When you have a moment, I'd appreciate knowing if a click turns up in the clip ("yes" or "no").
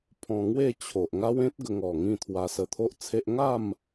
no